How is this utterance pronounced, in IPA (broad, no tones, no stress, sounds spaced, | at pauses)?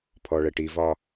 pʰ ɔ ɭ ɛ ʈ i v ɒ